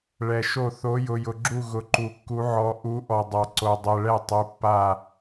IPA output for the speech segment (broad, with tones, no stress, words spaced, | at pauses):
ɭɛ˨ʃo˦˨ θo˨˦jʊ˨jʊ˨ɡ͡ǁu˦˨ ɣʊ˨ǃu˨kːu˨˦ʕɔ˨˦ ʔu˨˦ʔɔ˨dˤa˨ ǀo˨dˤɛ˨ɭɛ˦˨ tˤu˨˦pːa˦˨